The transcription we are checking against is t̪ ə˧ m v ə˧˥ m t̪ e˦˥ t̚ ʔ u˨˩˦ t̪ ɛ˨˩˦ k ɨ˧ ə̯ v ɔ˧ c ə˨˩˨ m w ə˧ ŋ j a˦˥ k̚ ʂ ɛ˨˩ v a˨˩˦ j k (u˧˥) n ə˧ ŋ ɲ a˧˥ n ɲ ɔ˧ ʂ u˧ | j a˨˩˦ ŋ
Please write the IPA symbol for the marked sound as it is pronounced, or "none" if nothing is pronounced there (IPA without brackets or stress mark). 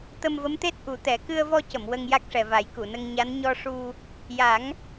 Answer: u˨˩˨